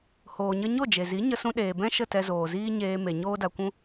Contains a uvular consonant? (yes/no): no